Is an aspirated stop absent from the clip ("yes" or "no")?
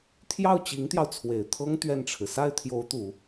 no